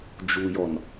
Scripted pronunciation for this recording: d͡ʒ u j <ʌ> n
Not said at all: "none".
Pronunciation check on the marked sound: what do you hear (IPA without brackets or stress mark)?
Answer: ɔ